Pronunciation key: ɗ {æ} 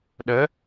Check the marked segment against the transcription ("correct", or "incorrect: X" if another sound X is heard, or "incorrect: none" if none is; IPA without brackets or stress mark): incorrect: ə